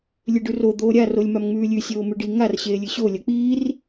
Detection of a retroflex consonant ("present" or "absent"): present